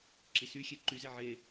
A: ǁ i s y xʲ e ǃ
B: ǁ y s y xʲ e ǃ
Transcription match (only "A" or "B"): A